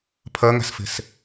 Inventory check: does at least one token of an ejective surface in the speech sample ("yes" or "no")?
no